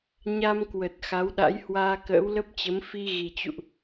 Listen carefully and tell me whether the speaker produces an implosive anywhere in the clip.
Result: yes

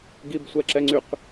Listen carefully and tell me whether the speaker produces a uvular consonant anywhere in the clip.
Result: yes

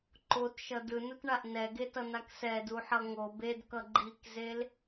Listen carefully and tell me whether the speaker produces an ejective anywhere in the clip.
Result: no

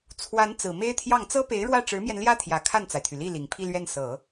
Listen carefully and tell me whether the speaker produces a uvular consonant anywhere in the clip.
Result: no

